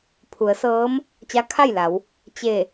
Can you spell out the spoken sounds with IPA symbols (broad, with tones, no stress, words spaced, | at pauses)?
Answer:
pʰu˩˧ə̯sɤː˧˥m | t͡ɕa˧˥kʰa˥˨jla˩˧w | t͡ɕe˧˩